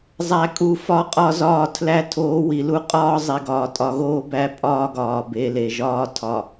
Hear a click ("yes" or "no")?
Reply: no